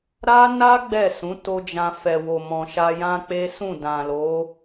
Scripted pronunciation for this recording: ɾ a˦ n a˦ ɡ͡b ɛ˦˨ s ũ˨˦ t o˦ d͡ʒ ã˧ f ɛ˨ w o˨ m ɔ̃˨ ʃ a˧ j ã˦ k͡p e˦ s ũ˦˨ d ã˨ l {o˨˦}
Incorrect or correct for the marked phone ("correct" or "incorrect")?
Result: correct